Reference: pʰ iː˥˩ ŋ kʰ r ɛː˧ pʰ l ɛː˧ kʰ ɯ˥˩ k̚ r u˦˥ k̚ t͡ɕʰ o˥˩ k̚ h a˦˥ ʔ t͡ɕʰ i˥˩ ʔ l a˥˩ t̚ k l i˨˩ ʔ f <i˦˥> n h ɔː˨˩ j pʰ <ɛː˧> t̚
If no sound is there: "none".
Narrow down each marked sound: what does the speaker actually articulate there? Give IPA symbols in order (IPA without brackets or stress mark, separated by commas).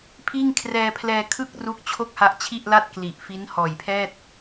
i˦˥, ɛː˥˩